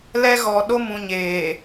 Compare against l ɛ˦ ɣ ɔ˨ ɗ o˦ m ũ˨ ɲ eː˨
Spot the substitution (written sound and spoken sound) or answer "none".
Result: none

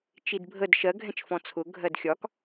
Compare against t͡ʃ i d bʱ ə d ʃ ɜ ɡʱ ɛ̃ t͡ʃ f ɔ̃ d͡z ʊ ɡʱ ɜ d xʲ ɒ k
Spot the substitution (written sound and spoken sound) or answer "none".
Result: d͡z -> t͡sʰ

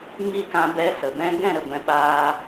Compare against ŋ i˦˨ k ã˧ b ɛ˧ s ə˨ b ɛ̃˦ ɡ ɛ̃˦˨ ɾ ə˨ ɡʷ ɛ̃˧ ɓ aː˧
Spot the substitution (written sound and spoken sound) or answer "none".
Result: none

